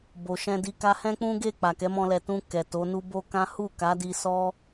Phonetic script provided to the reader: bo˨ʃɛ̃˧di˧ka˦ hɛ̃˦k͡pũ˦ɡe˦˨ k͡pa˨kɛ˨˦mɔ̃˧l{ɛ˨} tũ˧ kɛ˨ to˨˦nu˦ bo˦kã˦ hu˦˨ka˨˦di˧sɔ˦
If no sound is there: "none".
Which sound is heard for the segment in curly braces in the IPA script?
ɛ˨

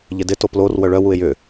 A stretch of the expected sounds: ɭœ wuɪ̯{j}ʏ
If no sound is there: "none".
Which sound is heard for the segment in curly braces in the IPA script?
j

